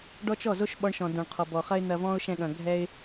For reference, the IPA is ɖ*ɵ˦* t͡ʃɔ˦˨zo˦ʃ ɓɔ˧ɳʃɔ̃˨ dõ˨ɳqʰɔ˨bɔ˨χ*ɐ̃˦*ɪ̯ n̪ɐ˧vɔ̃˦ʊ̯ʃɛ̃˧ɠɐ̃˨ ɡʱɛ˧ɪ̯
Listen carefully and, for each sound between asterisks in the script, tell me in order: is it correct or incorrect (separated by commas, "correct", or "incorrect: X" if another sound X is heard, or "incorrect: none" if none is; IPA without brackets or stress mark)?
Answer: incorrect: ɔ˦, incorrect: ɐ˦